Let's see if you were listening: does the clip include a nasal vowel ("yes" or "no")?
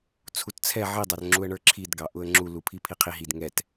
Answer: no